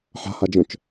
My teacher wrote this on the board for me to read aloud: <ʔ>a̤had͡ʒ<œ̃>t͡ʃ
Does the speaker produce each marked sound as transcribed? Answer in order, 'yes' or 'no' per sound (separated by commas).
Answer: no, yes